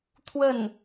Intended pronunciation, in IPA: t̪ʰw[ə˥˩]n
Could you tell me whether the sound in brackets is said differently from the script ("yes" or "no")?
no